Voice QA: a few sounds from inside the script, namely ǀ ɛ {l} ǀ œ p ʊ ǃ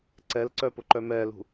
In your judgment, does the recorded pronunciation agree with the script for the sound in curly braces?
yes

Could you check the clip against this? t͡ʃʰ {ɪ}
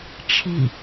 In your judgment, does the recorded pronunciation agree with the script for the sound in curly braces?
no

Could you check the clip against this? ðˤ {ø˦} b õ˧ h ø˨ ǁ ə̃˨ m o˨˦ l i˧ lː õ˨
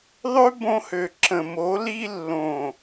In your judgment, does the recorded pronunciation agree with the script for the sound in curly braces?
yes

